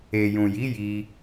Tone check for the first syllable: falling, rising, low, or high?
low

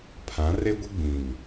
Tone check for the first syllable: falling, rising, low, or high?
rising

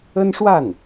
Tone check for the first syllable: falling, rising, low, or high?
high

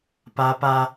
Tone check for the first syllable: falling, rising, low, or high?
high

